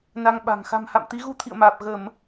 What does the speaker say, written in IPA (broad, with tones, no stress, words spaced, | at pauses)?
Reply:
na˧ŋɓa̤˨˩ŋ xa̤˨˩mha̰˧˨m t̪i˨˦ɣu˧t̪ʰḭ˧˨ə̯maː˨˩p̚ ɣə˧˩˨m